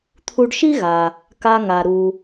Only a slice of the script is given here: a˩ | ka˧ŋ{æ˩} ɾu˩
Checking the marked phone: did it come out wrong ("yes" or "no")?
yes